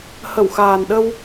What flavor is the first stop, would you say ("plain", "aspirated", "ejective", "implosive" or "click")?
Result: implosive